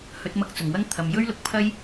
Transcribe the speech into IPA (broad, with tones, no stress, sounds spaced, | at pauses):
h ɵ˨˥ t̚ m ɐ˧ k̚ t͡s ʊ˨˩ ŋ w ɐ˥ ŋ t̪ʰ ɐ˨˧ m j ɵ˥ ɥ l ʊ˨˥ k̚ pʰ ɐ˥ j